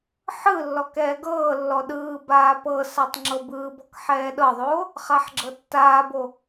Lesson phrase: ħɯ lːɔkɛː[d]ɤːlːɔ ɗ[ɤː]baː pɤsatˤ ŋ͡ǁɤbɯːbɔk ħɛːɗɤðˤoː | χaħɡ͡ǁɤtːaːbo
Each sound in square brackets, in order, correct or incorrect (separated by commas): incorrect, incorrect